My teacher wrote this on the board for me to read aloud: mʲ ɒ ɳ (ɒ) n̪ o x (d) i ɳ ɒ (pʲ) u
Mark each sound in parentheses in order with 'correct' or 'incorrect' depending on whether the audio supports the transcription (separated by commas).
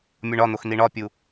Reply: correct, incorrect, correct